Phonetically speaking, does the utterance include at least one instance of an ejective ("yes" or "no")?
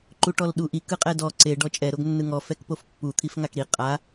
yes